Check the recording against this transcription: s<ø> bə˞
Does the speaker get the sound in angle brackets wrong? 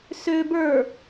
no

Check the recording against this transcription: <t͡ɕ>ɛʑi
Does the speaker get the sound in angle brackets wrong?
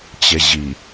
no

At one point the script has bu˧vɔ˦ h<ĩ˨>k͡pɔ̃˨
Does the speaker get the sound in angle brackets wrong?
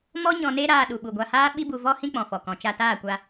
yes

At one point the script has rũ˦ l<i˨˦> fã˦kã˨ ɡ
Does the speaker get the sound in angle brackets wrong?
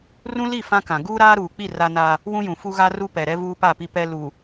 yes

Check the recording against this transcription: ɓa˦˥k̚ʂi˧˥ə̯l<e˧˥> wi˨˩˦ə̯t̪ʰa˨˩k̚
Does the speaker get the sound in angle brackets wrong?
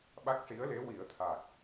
no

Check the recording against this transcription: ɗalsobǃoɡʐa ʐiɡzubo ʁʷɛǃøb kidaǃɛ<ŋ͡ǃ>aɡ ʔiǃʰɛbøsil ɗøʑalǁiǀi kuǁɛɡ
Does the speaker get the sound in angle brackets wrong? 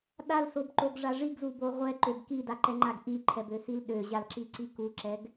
no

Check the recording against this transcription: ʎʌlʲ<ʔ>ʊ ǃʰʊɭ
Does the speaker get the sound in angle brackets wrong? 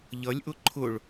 no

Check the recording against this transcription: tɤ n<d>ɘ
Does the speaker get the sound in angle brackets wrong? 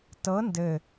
no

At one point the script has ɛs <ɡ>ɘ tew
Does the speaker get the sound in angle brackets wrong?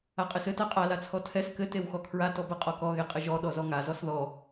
yes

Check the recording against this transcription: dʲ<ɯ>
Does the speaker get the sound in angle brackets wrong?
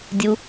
yes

